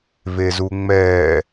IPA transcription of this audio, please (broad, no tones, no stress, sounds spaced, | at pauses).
v e z u ŋ͡m ɛː